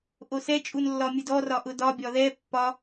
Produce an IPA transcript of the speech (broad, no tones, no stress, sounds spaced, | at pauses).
ʔ o s ɛ t͡ʃʼ u n lː ɒ mʲ ɯ d ɔ r ɒ ʔ ʊ d ɒ bʲ ɒ ð ɛ pː ɒ